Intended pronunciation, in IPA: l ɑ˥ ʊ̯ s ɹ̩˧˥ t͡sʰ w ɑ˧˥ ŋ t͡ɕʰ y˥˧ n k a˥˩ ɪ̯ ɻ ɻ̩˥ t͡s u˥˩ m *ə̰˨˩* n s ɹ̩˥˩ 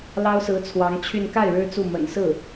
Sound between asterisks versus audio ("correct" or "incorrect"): correct